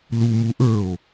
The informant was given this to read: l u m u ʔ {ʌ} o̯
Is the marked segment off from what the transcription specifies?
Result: yes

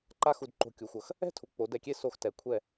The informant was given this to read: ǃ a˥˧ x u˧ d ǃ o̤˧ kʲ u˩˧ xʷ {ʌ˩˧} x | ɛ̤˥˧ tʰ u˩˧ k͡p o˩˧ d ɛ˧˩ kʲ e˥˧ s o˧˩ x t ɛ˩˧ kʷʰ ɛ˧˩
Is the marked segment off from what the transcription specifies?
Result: no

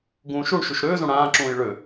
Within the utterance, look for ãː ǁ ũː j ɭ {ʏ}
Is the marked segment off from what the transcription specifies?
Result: no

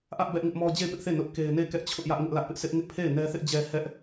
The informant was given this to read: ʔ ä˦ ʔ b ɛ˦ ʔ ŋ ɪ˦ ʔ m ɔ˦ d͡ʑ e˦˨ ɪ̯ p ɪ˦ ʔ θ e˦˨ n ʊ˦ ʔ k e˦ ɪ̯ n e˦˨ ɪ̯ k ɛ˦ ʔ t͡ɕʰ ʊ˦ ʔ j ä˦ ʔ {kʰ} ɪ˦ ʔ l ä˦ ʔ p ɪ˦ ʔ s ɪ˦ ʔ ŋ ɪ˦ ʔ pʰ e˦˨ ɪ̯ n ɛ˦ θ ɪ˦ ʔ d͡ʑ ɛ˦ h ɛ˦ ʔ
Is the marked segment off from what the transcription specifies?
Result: yes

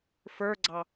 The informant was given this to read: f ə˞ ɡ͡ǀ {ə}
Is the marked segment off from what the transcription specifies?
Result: yes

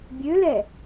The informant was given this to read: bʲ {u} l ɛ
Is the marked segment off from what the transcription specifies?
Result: yes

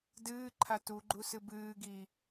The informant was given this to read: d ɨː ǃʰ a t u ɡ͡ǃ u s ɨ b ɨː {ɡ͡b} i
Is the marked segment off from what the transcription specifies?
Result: yes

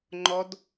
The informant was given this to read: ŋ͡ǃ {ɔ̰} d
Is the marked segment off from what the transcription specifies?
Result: yes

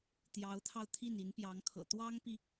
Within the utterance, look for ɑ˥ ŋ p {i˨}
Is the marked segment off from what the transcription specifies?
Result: no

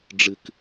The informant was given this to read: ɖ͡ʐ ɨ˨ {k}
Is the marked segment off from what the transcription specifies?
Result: no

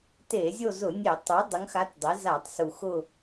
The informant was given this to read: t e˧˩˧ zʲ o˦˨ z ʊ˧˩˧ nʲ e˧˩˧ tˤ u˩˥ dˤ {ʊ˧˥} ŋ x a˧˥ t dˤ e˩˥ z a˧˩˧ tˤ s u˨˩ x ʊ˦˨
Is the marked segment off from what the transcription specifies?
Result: no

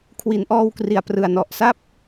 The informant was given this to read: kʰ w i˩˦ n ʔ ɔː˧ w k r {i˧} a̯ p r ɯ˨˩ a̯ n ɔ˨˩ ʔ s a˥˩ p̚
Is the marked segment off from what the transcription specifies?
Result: yes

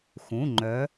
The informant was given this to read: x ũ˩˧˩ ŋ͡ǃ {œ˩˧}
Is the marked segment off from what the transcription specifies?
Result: no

